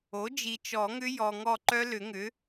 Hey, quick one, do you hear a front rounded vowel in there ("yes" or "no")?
yes